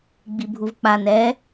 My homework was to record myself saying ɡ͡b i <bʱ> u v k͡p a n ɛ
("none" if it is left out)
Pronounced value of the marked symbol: bʱ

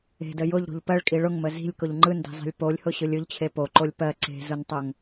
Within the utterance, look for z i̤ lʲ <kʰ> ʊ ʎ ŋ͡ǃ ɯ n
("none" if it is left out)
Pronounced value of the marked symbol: k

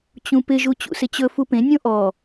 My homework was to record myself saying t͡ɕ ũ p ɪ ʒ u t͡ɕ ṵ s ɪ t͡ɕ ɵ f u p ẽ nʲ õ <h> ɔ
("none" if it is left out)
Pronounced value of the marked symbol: ʔ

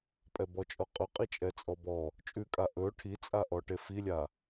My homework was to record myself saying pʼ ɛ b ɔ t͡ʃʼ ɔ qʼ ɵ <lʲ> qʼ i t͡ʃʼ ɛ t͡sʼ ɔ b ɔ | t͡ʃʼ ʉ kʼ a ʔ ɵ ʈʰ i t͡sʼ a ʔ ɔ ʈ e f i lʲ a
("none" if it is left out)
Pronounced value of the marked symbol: none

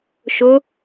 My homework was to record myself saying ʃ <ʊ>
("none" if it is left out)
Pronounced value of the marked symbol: ʊ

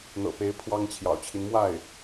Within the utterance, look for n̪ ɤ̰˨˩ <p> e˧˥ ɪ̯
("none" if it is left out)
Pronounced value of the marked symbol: p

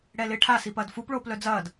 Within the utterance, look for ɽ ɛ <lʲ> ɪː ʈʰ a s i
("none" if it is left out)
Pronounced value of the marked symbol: l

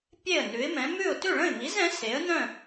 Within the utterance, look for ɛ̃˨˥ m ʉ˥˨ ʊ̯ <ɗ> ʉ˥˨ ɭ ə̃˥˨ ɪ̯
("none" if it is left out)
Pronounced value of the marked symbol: t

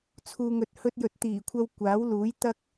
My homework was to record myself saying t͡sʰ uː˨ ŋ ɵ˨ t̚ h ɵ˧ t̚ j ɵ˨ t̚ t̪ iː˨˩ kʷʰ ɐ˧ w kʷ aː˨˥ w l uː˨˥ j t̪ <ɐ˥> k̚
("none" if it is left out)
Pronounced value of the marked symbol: ɐ˥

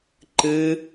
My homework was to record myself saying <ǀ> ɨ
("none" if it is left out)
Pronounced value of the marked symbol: ǃ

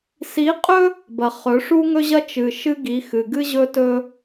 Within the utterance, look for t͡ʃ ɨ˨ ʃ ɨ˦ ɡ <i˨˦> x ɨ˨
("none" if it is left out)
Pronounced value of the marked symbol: i˨˦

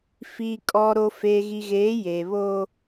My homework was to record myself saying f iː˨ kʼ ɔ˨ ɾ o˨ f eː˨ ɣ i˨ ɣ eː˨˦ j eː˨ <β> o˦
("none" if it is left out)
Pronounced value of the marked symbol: β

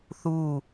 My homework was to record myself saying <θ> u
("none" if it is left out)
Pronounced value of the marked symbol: θ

